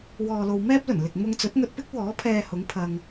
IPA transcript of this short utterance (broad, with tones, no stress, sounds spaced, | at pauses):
w ɔː˨ l o˨ w m ɛː˥ p̚ l ɵ˨˩ n l ɪ˨ k̚ m ʊ˧ ŋ t͡s ɵ˨˥ t̚ ŋ ɵ˧ t̚ p ɪ˥ k̚ w ɔː˨˥ pʰ ɛː˧ h ʊ˨˧ ŋ pʰ ɐ˧ ŋ